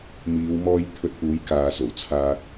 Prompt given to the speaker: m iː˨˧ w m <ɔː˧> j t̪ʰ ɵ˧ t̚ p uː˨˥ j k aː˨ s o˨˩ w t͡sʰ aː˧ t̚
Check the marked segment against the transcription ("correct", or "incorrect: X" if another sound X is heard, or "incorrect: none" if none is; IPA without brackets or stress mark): correct